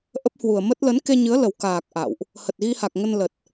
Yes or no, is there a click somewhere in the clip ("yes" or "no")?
no